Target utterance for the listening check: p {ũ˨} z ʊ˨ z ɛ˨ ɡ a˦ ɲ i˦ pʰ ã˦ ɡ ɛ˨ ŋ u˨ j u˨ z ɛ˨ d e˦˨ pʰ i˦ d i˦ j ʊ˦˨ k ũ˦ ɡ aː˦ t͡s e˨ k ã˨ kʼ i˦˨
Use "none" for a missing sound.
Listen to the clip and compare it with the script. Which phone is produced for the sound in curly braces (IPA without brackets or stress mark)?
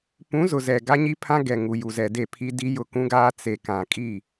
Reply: ũ˨˦